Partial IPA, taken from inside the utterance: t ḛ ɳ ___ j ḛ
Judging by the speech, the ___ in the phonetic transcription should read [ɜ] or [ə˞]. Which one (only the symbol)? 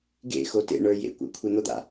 ə˞